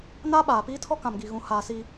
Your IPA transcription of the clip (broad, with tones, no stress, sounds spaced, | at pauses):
n aː˦ ɓ aː˨ p iː˦ tʰ ɔ˦ k ã˨ m ɡ i˨ ɣ ũ˨ h aː˨ s iː˨